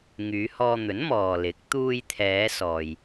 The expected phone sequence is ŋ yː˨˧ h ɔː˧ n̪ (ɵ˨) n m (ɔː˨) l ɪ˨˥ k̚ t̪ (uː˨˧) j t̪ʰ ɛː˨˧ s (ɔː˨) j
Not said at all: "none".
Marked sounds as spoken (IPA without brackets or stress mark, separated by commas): ɵ˨˥, ɔː˨, uː˧, ɔː˨